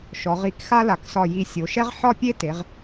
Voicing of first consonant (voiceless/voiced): voiceless